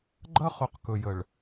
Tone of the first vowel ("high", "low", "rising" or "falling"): high